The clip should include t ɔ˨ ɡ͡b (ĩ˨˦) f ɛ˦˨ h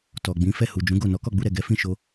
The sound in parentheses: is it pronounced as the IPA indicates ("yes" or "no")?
yes